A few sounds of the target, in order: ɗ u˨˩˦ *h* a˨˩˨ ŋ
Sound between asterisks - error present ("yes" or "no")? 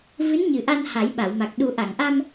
yes